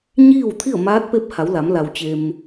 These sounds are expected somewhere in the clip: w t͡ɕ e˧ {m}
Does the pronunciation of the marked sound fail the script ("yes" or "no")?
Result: no